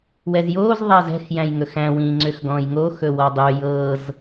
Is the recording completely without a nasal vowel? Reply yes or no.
no